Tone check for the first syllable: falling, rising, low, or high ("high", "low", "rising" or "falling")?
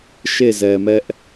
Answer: falling